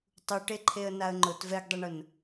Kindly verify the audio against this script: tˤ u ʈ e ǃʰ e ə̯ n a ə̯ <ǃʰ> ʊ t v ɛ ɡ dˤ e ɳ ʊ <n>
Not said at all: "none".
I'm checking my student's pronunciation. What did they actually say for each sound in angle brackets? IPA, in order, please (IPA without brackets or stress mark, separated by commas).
ŋ͡ǃ, n